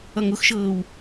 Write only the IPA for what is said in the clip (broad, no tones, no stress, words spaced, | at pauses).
ʌŋʊxʃɤːw